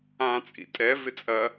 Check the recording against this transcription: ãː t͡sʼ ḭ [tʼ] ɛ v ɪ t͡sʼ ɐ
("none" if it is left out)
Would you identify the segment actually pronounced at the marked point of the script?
tʼ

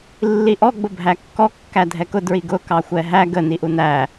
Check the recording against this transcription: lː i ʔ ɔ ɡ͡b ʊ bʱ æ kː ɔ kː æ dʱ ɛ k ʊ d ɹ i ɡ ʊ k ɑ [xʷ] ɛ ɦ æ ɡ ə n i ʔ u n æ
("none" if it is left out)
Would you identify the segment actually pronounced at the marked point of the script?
xʷ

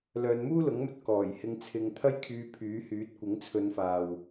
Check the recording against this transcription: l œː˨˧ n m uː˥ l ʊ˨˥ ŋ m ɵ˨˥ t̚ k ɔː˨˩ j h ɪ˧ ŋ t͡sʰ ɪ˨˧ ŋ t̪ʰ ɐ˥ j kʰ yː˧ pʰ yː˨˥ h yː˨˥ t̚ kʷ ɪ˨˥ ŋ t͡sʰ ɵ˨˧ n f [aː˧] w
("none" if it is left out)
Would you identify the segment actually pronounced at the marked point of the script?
aː˨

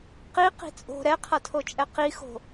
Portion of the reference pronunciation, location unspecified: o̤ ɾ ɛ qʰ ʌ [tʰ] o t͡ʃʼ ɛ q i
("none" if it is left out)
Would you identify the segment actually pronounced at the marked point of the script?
tʰ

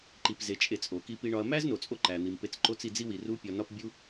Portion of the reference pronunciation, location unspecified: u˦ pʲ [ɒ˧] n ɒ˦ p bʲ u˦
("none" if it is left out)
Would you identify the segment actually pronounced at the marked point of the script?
ɒ˧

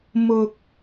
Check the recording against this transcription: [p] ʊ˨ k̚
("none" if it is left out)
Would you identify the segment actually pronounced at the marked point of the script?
m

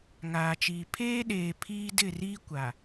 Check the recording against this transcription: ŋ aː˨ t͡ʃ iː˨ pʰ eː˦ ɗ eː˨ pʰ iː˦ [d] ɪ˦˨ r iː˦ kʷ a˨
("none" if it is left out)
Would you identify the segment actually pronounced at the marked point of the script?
d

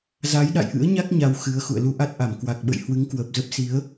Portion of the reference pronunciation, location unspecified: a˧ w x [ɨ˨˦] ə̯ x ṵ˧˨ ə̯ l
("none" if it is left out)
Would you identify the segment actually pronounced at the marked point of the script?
ɨ˨˦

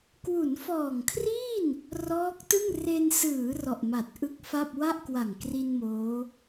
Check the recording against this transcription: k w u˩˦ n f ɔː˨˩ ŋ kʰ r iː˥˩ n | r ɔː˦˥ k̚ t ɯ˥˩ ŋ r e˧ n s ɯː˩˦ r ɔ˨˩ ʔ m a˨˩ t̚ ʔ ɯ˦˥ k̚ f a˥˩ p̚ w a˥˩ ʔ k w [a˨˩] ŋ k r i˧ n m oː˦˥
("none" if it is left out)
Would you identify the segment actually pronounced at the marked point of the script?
a˨˩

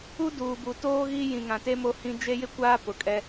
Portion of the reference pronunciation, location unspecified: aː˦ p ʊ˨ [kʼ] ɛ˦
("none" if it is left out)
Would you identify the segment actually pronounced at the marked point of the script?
kʼ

